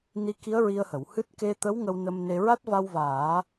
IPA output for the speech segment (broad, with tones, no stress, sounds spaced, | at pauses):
n i˧˥ k i˧˥ ə̯ ɹ i˧ ə̯ h ə˨˩˨ w h ɨ˦˥ t̚ k e˧ t̪ ə˧˥ w ŋ ə˧ w n ə˧ m n e˧ ɹ a˦˥ t̚ v a˧ w v aː˨˩˦